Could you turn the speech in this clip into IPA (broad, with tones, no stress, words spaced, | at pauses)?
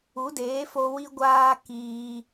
u˨˦deː˨˦fo˧ wi˧ɡʷaː˧ kiː˧